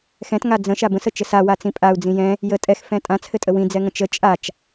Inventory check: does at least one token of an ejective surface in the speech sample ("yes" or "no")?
yes